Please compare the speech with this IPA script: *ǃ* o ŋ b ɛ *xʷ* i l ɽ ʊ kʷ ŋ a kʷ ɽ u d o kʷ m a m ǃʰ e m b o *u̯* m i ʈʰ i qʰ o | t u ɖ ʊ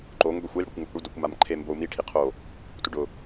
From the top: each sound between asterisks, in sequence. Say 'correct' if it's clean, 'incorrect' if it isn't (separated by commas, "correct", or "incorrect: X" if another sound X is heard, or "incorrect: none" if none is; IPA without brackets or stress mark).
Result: correct, correct, correct